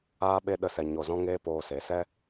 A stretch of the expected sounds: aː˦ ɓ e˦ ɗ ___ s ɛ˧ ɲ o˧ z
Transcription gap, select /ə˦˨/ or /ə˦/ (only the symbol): ə˦˨